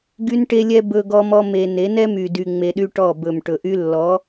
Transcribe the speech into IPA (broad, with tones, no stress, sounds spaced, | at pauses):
ɡ y˦ n ʈ e˦ lʲ ɛ˦ b ɵ˧ ɡ ɔ˦ m ɔ˦ m e˧ n e˨˦ n ɛ˦ m y˨ d y˧ ŋ͡m e˧ ɗ y˦ ʈ ɔ˦˨ b ɵ˨ m ʈ ɵ˨ ʔ y˧ lː ɔ˨˦